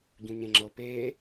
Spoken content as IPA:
ɟ ũ ɲ ẽ ŋ͡ǁ ɤ p e

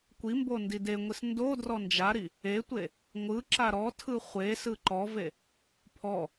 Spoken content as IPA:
kʷ i m b o n d i d e ŋʷ i s n d o d r ɔ n d͡ʒ a ɾ i | e tʷ e | ŋʷ ɯ ǁ a ɾ ɔ tʰ ɯ χʷ e s ɯ ǃ ɔ v e | pʰ ɔ

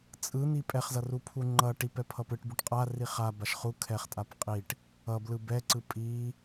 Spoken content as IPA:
t͡sʼ ɯ n̪ i pʼ ɛ χ z ʌ r u pʰ u ŋ͡ǃ ʌ ʈ i p ɛ pʰ ʌ p ɯ ʈ b u ʈ qʼ a r i χ a b a ʃ χ u kʰ ɛ χ tʼ a p qʼ i ʈ | ʌ b l ɯ b ɛ ǀ ɯ pʼ i

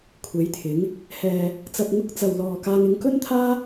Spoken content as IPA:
kʷʰ e˨˥ j t̪ʰ ɪ˨˥ ŋ | h ɛː˨ | t͡s ɐ˨ p̚ ŋ ʊ˧ k̚ t͡s ɐ˨ w l ɔː˨ k aː˧ ŋ ɪ˧ ŋ k ɵ˥ n t̪ʰ aː˥

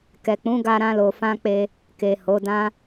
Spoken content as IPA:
k ɛ˨ k͡p ũ˨˦ ɡ a˧ ɾ ã˧ l o˨ f ã˧ k͡p e˧ | k e˨ h o˨˦ d ã˦

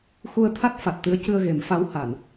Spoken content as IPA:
x u˧ ə̯ t̪ʰ a˦˥ t̚ f a˨˩ t̚ t̪ ɨ˧˥ ə̯ c ɨ˧ ə̯ ɣ e˨˩˦ m f a˧˥ w h a˨˩˨ n

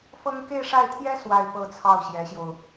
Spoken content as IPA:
f ɤ˥ ŋ k e˥˧ ɪ̯ ʂ a˥˩ ɪ̯ t̪ʰ j ɛ˥ s w a˥˧ ɪ̯ p ɤ˥˧ t͡sʰ ɑ˥˩ ʊ̯ ɕ j ɛ˧˥ ɕ j o˧ ʊ̯

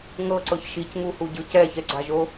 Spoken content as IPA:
ŋ ɤ ǀ ɤ ç ʃ i c ŋ u h u ɟ ɯ c ɛ ç ɛ ɡ͡ǀ a ʒ o

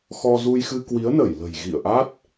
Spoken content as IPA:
x ɔ˧ z u˧ j x ɨ˧ k w i˨˦ ə̯ n ə˧˩ j l ə̤˨˩ j ɣ ḭ˧˨ ə̯ ʔ a˦˥ t̚

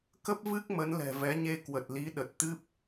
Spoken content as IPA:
k ə˦˥ p̚ v ɨ˦˥ k̚ m ə˨˦ n l ɛ̤˨˩ v ɛ˨˦ ɲ e˧ k w ə˨˩ t̚ l i˨˦ ɗ ə˨˩ t̚ t̪ ɨ˦˥ p̚

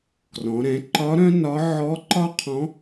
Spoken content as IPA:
k r ɔ̃˩˧ ɾ ɛ̃˩˧ ǃ ɒ˧˥ ɾ œ̃˥ n ɒ˧˥ ʕ ɔ˧˥ ǃ ɒ˥ qʰ ɔ̃˧˥

